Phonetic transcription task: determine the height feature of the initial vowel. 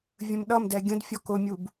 mid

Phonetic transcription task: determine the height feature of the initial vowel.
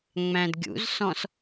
low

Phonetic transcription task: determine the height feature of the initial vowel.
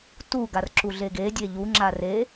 high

